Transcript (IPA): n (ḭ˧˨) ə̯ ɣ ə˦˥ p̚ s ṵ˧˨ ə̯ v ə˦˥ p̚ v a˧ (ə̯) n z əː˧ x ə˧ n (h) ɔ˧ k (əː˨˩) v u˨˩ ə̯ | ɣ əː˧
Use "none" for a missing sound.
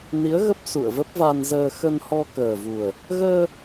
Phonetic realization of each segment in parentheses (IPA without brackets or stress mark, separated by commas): i˨˦, none, h, əː˨˩